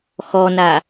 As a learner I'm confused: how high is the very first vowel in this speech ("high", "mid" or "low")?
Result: mid